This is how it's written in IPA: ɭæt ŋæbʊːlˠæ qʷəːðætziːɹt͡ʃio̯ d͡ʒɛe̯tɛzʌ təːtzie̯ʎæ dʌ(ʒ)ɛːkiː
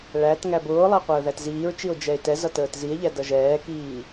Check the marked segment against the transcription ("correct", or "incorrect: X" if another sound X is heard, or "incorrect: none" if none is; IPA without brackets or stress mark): correct